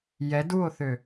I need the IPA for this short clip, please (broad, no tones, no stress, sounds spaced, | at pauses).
j ɛ d u o̯ θ ø